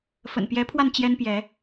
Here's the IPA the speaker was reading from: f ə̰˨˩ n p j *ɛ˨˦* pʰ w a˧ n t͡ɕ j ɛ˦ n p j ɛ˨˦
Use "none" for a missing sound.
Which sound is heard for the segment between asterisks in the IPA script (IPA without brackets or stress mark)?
ɛ˨˦